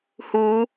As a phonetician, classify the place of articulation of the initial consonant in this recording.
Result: glottal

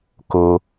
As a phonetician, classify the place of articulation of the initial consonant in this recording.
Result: velar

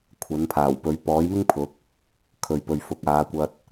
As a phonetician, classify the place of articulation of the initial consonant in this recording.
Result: velar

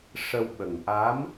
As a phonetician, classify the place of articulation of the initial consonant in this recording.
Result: retroflex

